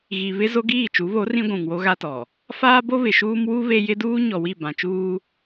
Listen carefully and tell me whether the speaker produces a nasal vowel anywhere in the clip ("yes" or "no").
yes